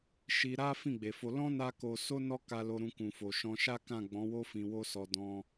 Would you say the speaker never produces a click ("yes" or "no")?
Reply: yes